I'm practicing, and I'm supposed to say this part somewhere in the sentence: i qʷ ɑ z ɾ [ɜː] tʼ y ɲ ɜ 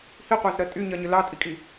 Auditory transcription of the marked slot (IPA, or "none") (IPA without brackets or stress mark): ɜ